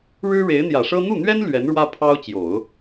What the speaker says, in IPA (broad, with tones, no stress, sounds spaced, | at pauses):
ɻ ɻ̩˥ ɻ e˧˥ ɪ̯ n̪ j ä˨˩ ʂ ɤ˥ n̪ u˥˩ n̪ ɥ ɛ˥ n l ɥ ɛ˧˥ n ɻ w ä˥ pʰ ɑ˥ ʊ̯ t͡ɕ j o˨˩˦ ʊ̯